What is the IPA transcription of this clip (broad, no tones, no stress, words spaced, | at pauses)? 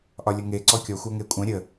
ʔɒlʲəŋe ǀɔkʲɔ xʷœŋekʷʼœ̃ ɾʲə